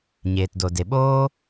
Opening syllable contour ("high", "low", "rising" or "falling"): low